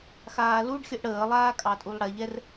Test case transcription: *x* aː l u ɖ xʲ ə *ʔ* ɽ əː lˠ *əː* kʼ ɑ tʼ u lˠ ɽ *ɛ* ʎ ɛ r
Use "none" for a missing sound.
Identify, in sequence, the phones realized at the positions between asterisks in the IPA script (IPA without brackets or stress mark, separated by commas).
x, ʔ, aː, ɛ